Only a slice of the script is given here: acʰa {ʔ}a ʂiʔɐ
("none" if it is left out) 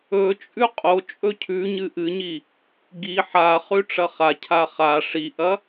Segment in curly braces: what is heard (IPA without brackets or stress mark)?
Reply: χ